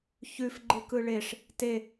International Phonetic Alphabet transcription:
ç ʉ f ɡ͡ǃ ɯ k ɯ ɭ e ʂ | t e

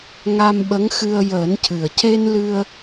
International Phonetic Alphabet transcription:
ŋ a˧ m ɓ ə˧˥ ŋ x ɨ˧ ə̯ j əː˨˩˦ n c ɨ˨˩ ə̯ c e˧ n l ɨ˧ ə̯

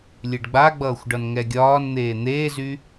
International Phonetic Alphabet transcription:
lʲ e ɖ ɡ͡b a ɡ͡b ʌː xʷ ɖ ʌ n ŋ ɛ ɡʲ ɒː n n̪ eː n̪ eː z y

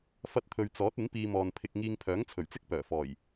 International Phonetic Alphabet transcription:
f ɐ˥ t̚ t̪ʰ ɵ˧ ɥ t͡s ɔː˨˥ t̚ ɪ˨˥ ŋ p iː˧ m ɔː˨ n pʰ ɪ˧ k̚ ŋ iː˧ ŋ pʰ œː˨˥ ŋ t͡sʰ ɵ˨˩ ɥ t͡s ɪ˥ k̚ p œː˨˩ f ɔː˨˩ j

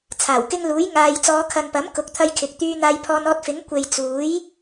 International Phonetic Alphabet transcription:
t͡sʰ aː˨˩ w k ɪ˧ ŋ l uː˨˥ j ŋ aː˨ j t͡s ɔː˨˧ kʰ ɐ˨ n p ɐ˨˥ m k ʊ˨˥ k̚ t̪ʰ ɐ˧ j kʰ ɪ˨ k̚ t̪ yː˧ n̪ aː˧ j pʰ ɔː˧ n ɔː˧ t̚ f ɪ˨˥ ŋ kʷ e˨ j t͡s uː˨˥ j

